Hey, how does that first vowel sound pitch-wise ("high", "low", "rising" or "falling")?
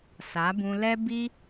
rising